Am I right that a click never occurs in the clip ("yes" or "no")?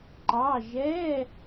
no